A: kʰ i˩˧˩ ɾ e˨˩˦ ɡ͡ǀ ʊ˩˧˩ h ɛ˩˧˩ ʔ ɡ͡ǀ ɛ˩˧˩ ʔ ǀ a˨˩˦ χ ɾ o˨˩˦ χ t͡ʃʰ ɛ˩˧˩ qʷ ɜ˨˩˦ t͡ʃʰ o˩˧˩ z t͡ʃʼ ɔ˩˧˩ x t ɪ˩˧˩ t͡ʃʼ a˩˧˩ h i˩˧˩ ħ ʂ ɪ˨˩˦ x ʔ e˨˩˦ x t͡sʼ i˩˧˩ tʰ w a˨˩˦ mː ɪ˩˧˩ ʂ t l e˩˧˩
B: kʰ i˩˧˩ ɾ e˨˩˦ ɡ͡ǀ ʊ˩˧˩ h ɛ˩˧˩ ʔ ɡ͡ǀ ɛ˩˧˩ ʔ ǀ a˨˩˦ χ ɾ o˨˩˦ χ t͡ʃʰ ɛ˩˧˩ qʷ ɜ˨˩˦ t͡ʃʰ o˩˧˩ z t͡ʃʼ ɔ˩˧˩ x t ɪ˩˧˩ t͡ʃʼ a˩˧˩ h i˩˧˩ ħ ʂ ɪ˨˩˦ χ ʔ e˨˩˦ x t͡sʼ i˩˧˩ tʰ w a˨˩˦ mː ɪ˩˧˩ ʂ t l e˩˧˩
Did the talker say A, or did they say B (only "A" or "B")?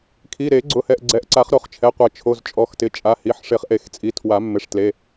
B